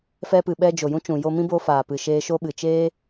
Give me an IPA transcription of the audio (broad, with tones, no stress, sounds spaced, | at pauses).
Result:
f ɛ˧ p ɨ˨ ɓ ɛ˧ d͡ʒ o˨ j ũ˦ t͡ʃ ũ˨ j o˧ m ĩ˦ b o˧ f aː˨ p ɨ˨ ʃ eː˧ ʃ o˦ ɓ ɨ˨ t͡ʃ eː˦